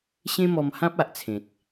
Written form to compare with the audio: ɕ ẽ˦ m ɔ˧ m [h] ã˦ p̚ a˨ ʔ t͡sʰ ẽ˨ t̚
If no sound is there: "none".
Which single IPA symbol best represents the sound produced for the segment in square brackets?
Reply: h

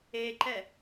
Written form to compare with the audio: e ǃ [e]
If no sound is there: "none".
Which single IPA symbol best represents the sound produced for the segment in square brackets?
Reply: ɛ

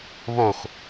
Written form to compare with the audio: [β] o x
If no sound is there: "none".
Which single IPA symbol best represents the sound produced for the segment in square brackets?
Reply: β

